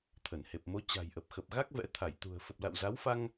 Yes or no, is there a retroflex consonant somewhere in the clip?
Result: no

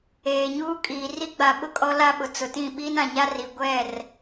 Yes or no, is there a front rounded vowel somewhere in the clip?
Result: no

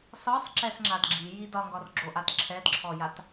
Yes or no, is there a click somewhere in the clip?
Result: yes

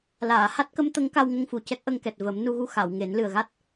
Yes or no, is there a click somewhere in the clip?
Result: no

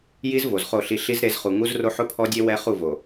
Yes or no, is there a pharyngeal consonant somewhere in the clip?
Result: yes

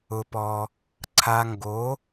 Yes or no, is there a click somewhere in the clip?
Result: yes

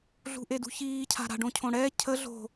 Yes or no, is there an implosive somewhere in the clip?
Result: no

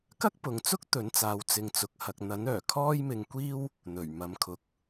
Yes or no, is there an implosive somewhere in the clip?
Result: no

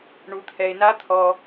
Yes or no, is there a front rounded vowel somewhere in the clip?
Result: no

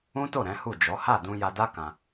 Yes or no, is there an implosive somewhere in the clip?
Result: no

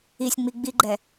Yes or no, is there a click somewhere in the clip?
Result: yes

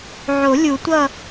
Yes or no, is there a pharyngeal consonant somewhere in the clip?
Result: yes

